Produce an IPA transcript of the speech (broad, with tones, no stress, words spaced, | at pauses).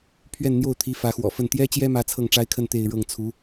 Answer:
pʰɥɛ˥˧nn̪jo˥˩ʊ̯t̪ʰi˧˥ fä˧˥xwɔ̰˨˩fə˥˩n t̪jɛ˥t͡ɕjɛ˥mä˧˥ t͡sʰɤ˥˩ŋʈ͡ʂa˥ɪ̯kʰə˥˧n t̪e˥˧ɪ̯ɻɤ˥˩ŋ t͡sʰu˧˥